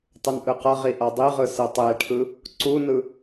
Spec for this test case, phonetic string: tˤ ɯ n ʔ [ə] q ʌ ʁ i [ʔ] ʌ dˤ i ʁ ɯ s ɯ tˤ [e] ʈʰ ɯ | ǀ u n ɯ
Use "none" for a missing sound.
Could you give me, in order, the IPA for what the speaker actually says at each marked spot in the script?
ɯ, ʔ, e

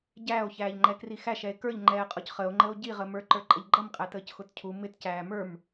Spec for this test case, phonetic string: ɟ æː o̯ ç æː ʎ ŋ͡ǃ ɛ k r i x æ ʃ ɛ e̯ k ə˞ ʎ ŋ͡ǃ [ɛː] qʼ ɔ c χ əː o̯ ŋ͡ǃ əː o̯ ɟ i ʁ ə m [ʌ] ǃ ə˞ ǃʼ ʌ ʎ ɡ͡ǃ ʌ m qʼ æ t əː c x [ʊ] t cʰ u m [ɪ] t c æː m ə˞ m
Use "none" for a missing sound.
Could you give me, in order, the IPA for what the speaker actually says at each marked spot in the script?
ɛː, ə˞, ʊ, ɪ

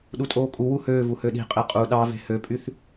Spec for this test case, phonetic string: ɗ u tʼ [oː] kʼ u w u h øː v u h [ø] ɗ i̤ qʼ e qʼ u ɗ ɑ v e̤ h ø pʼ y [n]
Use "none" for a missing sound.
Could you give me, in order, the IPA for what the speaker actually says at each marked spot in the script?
oː, ø, θ

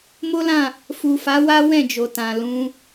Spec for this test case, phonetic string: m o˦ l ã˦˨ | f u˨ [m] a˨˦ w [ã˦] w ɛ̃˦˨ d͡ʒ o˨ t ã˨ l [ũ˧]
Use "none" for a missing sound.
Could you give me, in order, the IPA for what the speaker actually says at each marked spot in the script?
f, a˦, ũ˨˦

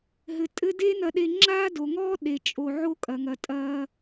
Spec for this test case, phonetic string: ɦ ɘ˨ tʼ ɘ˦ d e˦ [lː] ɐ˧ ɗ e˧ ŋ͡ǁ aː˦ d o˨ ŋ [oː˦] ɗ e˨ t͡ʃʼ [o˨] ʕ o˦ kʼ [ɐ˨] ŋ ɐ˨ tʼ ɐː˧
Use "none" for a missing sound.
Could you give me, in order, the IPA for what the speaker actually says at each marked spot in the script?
n, ɔː˦, o˨, ɐ˨

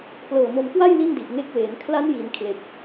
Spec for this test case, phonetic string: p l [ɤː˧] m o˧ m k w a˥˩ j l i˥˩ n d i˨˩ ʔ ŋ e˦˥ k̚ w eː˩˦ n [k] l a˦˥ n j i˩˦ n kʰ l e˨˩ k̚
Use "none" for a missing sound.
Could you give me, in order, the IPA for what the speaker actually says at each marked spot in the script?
ɤː˨˩, kʰ

